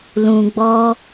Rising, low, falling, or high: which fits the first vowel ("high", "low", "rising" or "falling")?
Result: low